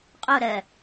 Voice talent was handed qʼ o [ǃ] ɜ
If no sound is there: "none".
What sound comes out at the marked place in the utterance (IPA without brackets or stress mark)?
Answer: ɾ